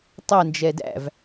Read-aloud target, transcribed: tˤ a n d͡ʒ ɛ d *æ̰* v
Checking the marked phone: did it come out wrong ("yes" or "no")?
no